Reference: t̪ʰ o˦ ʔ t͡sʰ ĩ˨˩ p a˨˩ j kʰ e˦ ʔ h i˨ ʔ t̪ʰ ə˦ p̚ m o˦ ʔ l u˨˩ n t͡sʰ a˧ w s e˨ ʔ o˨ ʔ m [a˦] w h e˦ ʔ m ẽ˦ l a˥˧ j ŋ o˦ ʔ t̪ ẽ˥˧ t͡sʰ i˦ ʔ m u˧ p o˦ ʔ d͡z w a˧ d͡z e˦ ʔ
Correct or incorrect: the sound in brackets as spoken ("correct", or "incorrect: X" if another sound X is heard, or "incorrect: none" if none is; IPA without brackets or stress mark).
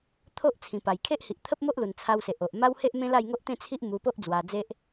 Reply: correct